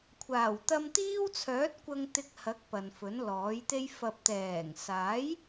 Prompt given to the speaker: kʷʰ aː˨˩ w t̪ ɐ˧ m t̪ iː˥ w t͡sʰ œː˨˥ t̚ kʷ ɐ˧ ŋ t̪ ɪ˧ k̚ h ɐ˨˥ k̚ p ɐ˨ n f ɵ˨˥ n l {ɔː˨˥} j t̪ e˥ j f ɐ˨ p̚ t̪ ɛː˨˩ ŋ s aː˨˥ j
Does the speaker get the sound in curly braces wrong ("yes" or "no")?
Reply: no